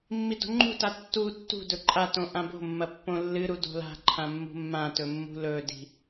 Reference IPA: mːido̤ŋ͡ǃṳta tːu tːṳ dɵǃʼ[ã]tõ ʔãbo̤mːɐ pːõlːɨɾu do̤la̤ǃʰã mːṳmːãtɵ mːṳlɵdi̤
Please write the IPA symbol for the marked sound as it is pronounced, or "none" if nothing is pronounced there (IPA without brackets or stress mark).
a